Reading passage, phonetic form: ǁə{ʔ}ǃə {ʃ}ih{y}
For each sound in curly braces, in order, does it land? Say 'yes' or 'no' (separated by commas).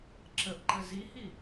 yes, no, no